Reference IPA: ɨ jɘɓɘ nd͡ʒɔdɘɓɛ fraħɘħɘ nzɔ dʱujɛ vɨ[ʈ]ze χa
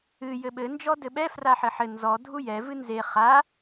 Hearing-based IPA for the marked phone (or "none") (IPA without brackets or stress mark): n